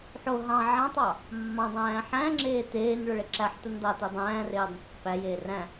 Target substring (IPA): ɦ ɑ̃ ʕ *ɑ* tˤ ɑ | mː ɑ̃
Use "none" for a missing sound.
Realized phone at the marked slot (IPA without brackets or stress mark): ɑ̃